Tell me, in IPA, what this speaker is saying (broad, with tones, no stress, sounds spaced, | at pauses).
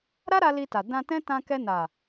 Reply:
ɾ a˦ ɾ a˧ l i˧ t a˨ d ã˧ t ɛ̃˦ t ã˧ k ɛ˧ n a˨